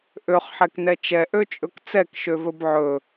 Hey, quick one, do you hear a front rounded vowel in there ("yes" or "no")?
yes